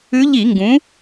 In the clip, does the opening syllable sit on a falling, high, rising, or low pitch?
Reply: rising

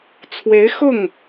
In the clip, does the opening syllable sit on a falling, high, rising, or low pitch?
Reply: rising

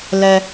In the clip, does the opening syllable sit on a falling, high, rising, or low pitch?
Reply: high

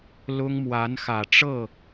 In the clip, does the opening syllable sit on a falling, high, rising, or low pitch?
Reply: high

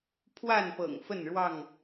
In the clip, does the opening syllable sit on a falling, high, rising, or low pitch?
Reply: falling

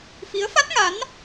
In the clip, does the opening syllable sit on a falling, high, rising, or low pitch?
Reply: rising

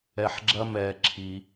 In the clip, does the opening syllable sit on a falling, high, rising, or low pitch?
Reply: high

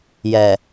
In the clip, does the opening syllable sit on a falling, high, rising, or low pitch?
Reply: low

